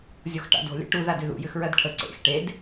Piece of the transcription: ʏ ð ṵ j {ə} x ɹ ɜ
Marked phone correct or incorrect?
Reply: incorrect